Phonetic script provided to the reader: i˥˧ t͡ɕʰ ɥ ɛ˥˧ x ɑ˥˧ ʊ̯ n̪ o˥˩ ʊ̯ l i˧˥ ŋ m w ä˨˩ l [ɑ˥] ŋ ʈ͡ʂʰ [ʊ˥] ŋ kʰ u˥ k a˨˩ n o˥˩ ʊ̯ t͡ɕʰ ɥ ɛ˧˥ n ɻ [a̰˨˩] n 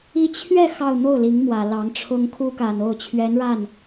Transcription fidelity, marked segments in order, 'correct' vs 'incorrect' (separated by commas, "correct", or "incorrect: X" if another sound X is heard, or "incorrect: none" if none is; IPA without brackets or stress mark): incorrect: ɑ˧˥, correct, incorrect: a˥˩